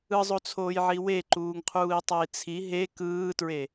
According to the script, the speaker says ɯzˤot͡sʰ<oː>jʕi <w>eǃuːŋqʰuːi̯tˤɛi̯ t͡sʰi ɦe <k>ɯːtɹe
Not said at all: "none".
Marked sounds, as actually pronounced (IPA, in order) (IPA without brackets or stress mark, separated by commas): oː, w, k